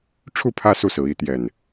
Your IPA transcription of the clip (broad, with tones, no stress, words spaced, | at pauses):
ʈ͡ʂʰu˥˨pʰä˦ su˥˨sɹ̩˨˦ i˨˦t̪jɛ˨˩n